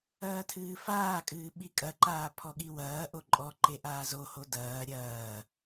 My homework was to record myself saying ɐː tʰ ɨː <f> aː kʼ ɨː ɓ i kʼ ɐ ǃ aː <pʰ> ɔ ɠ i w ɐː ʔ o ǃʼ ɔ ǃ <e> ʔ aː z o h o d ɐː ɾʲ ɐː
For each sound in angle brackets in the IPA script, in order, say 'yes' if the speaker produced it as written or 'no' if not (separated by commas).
yes, yes, yes